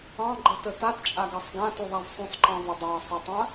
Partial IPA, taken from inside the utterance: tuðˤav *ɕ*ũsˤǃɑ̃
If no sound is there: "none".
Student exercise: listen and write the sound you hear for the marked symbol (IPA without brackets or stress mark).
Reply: sˤ